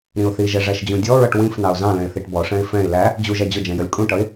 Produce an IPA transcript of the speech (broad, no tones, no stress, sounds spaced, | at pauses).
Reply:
ɾ ĩ ʊ̯ θ i ʒ ɛ ʐ æ ʃ d͡ʑ ũ dʲ ɔ ɹ ʌ ʈ w ĩ f n ɑ ʊ̯ z ɑ̃ l ɛ̃ ɪ̯ θ i ʈ b ɔ ʂ ɛ̃ ɪ̯ f ɛ̃ ɪ̯ l æ | d͡ʑ u ʒ æ d͡ʑ ʊ d͡ʒ ɛ̃ j ʌ lʲ kʼ ũ ʈ ʌ ɪ̯